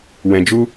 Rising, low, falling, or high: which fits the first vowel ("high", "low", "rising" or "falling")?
low